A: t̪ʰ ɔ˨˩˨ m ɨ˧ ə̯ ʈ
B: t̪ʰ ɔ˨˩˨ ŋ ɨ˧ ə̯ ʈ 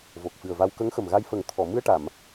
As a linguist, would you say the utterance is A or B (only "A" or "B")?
A